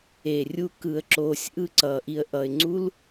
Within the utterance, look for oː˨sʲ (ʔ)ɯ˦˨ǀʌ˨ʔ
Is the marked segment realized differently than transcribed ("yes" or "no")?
no